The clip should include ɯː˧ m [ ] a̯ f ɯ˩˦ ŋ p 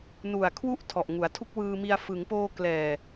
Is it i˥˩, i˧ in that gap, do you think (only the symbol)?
i˧